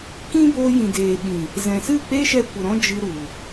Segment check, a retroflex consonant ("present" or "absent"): absent